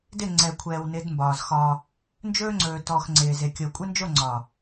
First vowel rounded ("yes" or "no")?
no